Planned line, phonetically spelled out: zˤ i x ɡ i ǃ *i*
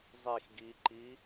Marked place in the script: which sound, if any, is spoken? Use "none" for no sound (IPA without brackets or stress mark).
i